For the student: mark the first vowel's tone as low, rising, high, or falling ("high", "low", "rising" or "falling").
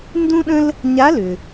high